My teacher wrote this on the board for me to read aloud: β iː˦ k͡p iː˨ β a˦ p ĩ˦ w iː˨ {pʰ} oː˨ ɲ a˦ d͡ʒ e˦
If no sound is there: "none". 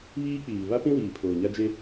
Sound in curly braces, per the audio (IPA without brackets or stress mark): pʰ